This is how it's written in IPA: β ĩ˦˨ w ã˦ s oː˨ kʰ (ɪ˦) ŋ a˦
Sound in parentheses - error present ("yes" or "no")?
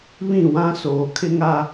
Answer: no